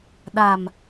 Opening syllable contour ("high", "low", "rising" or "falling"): low